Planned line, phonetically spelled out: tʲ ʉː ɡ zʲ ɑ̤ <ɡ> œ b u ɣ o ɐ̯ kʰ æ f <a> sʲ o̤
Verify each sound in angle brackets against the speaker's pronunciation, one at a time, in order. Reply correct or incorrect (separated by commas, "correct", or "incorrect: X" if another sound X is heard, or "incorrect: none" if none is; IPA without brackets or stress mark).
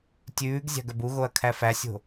correct, incorrect: æ